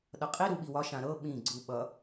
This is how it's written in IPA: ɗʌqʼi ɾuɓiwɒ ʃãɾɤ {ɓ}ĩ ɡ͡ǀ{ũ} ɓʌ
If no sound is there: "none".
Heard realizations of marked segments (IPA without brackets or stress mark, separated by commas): ɓ, u